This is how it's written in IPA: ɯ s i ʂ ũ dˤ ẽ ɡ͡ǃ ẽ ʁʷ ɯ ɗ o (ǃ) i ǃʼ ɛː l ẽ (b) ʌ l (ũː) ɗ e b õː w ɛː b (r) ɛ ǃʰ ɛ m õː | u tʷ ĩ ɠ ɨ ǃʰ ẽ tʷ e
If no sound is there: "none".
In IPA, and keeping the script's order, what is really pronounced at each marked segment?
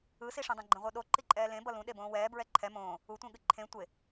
ǃ, b, ũ, ɹ

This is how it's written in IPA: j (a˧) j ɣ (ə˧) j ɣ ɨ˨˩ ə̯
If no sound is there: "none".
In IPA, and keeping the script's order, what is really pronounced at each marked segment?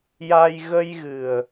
a˧, ə˧

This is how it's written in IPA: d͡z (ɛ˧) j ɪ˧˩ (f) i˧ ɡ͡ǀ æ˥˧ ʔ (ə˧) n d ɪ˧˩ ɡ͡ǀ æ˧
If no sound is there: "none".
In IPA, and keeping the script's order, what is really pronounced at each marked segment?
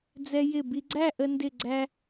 ɛ˧, b, ə˧

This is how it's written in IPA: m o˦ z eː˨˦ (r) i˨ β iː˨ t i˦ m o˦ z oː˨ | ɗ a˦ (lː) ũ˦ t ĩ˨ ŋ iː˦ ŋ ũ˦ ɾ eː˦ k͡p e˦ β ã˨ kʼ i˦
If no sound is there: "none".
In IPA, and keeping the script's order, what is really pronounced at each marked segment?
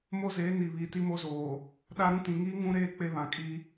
n, ɾ

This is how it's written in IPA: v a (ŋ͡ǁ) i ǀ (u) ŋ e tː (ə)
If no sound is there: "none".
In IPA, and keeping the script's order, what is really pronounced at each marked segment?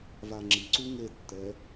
ŋ͡ǁ, u, ɛ

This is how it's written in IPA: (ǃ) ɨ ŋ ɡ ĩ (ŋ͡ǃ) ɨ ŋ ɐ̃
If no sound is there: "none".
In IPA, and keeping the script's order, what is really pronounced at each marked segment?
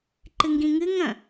ǃ, ŋ

